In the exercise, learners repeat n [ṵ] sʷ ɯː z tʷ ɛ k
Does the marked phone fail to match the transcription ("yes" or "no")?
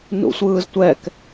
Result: no